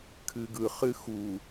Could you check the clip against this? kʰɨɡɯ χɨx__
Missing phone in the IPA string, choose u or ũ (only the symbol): u